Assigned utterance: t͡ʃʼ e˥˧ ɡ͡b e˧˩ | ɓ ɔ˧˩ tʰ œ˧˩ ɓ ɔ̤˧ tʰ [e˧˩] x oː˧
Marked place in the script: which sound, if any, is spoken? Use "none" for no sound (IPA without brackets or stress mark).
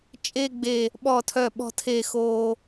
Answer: e˧˩